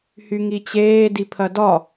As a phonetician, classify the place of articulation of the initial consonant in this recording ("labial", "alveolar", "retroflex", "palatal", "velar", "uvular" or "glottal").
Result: glottal